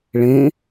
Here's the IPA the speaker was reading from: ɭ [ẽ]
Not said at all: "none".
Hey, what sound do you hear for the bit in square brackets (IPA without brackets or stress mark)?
ẽ